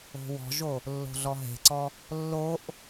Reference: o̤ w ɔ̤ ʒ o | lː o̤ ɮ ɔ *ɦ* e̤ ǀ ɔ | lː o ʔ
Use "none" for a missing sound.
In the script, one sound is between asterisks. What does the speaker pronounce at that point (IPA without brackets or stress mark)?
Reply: ɦ